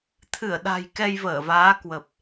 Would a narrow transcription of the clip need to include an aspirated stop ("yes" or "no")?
yes